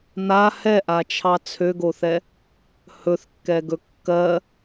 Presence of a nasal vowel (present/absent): absent